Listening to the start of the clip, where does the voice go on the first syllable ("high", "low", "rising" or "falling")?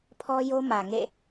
high